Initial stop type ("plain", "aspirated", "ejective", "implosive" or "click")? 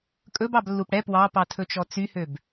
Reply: ejective